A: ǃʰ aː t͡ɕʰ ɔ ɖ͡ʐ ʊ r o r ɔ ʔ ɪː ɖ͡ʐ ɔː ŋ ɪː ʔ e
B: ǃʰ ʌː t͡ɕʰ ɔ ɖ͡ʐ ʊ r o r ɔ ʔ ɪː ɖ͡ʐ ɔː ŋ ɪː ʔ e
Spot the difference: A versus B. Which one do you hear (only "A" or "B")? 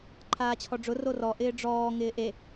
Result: A